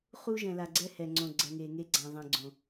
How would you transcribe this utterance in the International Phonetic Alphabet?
χ u˦ ʒ ɛ̃˨ l a˨ ɡ͡ǀ ɛ˦ h ɛ˨ ŋ͡ǀ õ˨ ɡ͡ǀ ɛ˨ ŋ e˨ ŋ e˦ ɡ͡ǀ ã˨ ðˤ ɛ̃˨ ɡ͡ǀ õ˨

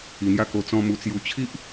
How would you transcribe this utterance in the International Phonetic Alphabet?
i˧ n̪ j a˥˧ k o˧ t͡s ɔ̃˧ m u˧ t͡s j u˧ t͡ɕʰ i˦ ʔ

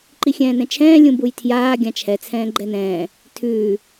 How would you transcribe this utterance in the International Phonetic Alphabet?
ǃ i xʲ ɛ̃ː n ɛ̃ t͡ʃʰ ɛ̃ː lʲ ũ b u j tʰ j aː ɡʲ ã t͡ʃʰ ɛ t͡sʰ ɛ̃ː ɡ͡ǃ ɛ n ɛ̃ː | tʰ ʉː

